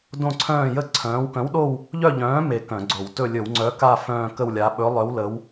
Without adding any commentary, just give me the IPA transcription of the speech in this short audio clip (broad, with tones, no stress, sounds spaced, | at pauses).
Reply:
d õ˥˧ ǀʰ œ̃ː˥˧ j ə˥˧ ǀʰ œ̃ː˨˥ w k œ̃˨˥ w ɗ o˥˧ w | ʎ œ˥˧ ʎ œ̃ː˨˥ m e˥˧ k œ̃˧˩˧ ɡ͡ǀ o˧˩˧ w t ɵ˥˧ lʲ ɵ˧˩˧ w ŋ͡ǀ œ˨˥ k a˥˧ f œ̃ː˥˧ k ə˥˧ w lʲ a˨˥ ɓ ɵ˨˥ lˠ œ˨˥ w l ə˨˥ w